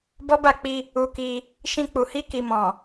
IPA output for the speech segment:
b ɔ˦ b a˦˨ k͡p i˧ | u˧ k i˧ | ʃ ĩ˧ k͡p u˨ h i˧ k i˨ m ɔ̃˨

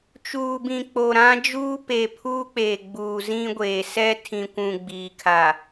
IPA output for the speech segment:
t͡ʃ uː˨ b ĩ˨ k͡p o˨ ɾ ã˦ d͡ʒ uː˦ p e˨ pʰ uː˦ k͡p eː˨ ɡ͡b uː˨ z ĩ˦ ɡʷ eː˨ s ɛ˦ tʰ ĩ˨ kʷ ũ˨ ɡ͡b iː˨ kʰ a˨

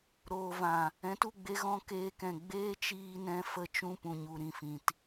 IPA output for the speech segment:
ɾ oː˨ v ã˨ | ɛ̃˨˦ t u˦˨ ɡ͡b e˧ ɣ ɔ̃˧ k eː˧ k ɛ̃˨ ɡ͡b eː˦ t͡ʃ iː˧ n ɛ̃˧ f ə˧ t͡ʃ ũ˧ p ũ˨ ɲ u˨ ɾ ĩ˧ f ĩ˨ t

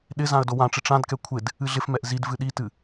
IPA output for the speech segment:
ɗ ɪ z ã ə̯ d o w ã ʈ͡ʂ ɪ ʈ͡ʂ ã d k ɛ kʷʰ ɪ d | ɨ ɮ ɪ f m ɛ ʔ z i d v ɨ ɗ i t ɨ

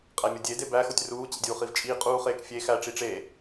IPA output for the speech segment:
qʼ æ mʲ o dʲ e d e b æ x o tʲ r uː t͡ɕ ḭ dʲ uː χ i v t͡ʃʼ iː qʼ uː χ eː k fʲ e x æ ʈ͡ʂ i ʈ͡ʂ e

